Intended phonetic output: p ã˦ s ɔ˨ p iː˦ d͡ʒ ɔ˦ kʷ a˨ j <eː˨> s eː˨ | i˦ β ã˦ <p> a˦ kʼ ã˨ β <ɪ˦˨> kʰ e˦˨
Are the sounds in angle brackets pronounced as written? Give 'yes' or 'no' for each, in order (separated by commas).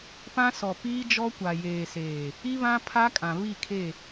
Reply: yes, no, no